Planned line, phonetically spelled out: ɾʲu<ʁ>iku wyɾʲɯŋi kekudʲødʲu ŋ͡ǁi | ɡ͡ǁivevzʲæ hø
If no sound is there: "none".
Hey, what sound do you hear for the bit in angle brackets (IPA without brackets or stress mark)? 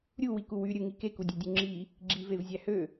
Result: w